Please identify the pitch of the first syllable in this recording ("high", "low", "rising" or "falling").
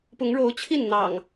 rising